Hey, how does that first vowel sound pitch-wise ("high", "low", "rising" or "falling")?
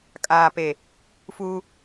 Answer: low